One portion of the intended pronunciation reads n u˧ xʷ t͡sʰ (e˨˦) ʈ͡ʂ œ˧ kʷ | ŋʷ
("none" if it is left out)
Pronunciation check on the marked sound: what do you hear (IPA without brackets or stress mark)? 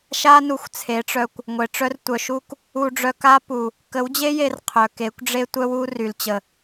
e˨˦